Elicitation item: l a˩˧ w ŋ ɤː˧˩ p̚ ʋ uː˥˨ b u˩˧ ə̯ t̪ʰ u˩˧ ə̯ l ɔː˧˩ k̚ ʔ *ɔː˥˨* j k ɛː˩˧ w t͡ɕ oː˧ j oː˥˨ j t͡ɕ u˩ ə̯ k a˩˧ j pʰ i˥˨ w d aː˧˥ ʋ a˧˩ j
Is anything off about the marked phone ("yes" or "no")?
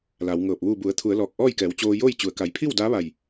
no